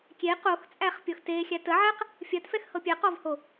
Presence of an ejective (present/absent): present